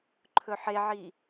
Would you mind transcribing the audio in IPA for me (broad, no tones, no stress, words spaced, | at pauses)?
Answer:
ǃʰɵħeʕi